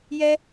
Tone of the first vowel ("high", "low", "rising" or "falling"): high